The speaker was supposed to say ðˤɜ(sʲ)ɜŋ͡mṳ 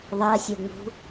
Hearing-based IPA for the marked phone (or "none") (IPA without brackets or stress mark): sʲ